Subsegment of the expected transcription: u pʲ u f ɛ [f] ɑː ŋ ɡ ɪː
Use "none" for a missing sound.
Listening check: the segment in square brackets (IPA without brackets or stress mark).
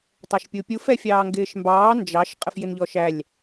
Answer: fʲ